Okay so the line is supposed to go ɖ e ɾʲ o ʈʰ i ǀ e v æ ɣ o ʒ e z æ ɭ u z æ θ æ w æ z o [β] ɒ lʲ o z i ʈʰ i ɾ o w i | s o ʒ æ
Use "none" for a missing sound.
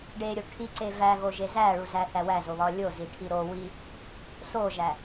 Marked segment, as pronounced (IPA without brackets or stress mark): β